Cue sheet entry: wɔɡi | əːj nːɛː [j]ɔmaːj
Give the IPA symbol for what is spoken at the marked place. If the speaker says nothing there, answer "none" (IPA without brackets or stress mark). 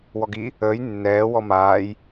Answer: w